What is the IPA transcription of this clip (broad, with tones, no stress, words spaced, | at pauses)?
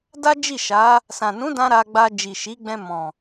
da˦ d͡ʒi˦˨ʃa˨˦ | sã˨nũ˨˦dã˧ ɾa˧ɡ͡ba˧ d͡ʒi˨ʃi˨˦ɡ͡bɛ̃˧ mɔ̃˨